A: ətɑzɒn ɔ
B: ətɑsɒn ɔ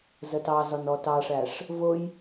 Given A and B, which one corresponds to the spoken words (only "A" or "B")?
A